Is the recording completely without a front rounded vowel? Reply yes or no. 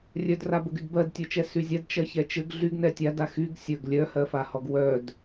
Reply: no